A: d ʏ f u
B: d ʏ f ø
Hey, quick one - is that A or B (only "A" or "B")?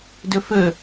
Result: B